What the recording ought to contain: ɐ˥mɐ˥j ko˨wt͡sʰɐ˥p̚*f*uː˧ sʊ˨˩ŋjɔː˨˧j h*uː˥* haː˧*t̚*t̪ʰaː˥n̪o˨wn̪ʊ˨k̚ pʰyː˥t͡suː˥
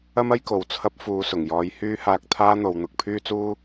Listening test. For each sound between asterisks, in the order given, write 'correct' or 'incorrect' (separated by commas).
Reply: correct, incorrect, incorrect